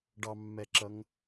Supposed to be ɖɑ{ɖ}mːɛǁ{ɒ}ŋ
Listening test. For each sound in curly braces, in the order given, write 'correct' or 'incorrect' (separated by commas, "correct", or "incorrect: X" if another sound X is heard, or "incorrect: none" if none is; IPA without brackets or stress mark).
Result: incorrect: none, incorrect: ʌ